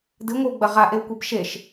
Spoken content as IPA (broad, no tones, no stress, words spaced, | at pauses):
dɨŋʷɨwɡ͡bɐ ʁaʔewkʷeb ʃeʃ